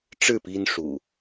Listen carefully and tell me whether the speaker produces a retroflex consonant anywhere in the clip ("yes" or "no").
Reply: yes